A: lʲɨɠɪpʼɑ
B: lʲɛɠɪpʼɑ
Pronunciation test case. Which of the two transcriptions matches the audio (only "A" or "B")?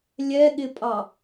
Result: B